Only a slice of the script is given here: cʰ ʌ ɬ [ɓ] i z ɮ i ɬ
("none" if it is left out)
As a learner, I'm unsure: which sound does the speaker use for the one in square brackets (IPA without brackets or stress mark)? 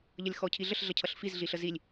f